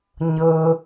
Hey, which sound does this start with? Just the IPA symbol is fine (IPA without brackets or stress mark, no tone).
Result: ɲ